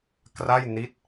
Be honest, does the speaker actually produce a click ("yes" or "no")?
no